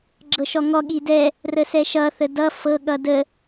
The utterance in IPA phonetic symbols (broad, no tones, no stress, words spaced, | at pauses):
ɡ͡ǁɤʃɔŋɔ ɠidɛ | rəsɛʃʌ θədʌ fɤ ɠʌdə